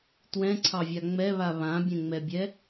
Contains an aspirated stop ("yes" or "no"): yes